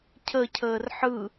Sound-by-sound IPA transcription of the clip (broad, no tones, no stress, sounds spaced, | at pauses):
cʰ ə cʰ əː r ħ ɯ